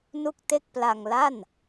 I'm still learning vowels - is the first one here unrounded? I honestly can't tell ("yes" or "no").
no